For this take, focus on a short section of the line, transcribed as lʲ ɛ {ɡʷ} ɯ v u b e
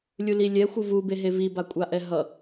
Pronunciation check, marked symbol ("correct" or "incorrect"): incorrect